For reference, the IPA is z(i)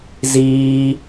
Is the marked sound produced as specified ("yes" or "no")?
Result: no